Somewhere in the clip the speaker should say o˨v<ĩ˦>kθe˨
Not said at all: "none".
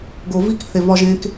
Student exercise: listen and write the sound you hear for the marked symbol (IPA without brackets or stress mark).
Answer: i˦